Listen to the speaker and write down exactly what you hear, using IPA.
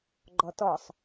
ɡ͡ǃ ɔ t ɔ sˤ

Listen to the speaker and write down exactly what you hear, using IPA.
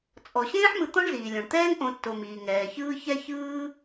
t͡sʼ ɔ˩ ɕ ẽː˥ ħ m ɯ˨ t̪ ɔ̃˥ ɳ z iː˩ lʲ õ˩ ɳ t̪ ɛː˥ ŋ ʔ õ˨ tː o˩ m iː˩ ŋ ɛː˩ ç ɯː˦ ç ɛ˥ ç ɯː˥

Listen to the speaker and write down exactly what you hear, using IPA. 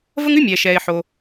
v ə˥ ŋ ʉ˥ mʲ ɛː˩ ʃ ɛː˩ ɪ̯ ħ o˩

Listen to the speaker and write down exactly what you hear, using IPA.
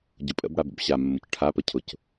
ɟ ʊ pʼ ə̰ b ɽ a b ə̰ b ɕ a mː ʊ c ʈʰ a p ə cʰ ʊ c

